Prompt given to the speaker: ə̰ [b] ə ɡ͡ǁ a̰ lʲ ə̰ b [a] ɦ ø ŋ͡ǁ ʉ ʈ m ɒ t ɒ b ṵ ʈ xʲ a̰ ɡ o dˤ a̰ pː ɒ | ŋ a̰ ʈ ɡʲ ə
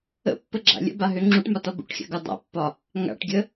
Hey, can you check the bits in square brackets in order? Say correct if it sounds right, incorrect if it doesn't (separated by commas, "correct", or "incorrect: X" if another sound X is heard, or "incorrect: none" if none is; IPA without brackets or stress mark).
incorrect: pː, correct